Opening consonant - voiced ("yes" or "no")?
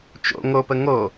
no